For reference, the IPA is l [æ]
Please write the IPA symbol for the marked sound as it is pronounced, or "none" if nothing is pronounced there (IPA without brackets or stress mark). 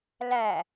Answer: æ